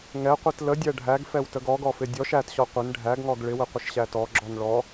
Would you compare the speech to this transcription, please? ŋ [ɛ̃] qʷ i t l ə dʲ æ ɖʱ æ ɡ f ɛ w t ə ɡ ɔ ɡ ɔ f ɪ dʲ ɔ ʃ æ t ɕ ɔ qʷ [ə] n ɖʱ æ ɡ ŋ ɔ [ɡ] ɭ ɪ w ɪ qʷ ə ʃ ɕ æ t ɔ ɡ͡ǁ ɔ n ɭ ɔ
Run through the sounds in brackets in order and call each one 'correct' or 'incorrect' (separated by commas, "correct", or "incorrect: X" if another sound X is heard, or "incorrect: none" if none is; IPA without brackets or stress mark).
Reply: incorrect: ɛ, incorrect: ɪ, correct